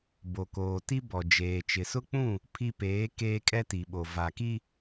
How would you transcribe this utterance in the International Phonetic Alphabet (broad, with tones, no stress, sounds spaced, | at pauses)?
b o˨ k oː˨ t i˦ b ɔ˨ d͡ʒ eː˨ t͡ʃ ɪ˨ s ʊ˦ k͡p ũ˦˨ | pʰ i˦ p eː˨˦ k eː˦ kʼ ɛ˦ t i˨ ɓ o˨ v a˨ k i˦